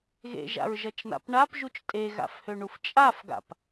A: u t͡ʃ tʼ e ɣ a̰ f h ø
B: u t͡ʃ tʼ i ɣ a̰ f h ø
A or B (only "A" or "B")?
A